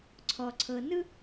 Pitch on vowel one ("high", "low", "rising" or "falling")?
low